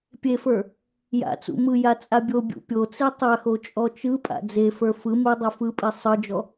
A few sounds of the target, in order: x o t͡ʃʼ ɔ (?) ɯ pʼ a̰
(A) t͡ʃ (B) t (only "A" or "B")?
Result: A